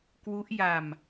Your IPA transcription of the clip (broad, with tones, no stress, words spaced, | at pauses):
kwu˦˥ʔja˧m